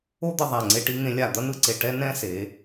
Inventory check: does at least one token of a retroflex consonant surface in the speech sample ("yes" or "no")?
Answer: yes